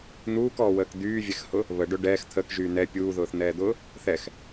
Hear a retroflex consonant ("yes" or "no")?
yes